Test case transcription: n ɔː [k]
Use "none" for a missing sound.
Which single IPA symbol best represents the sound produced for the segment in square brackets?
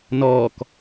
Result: k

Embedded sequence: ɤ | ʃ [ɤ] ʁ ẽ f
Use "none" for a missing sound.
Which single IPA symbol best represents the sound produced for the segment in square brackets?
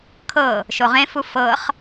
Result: o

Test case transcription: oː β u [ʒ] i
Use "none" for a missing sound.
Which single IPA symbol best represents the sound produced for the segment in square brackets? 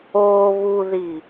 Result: ð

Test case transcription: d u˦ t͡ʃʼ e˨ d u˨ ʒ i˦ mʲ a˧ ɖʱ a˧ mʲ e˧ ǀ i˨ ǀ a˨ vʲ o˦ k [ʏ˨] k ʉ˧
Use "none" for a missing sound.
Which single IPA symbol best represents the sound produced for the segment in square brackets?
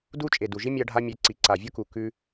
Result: u˨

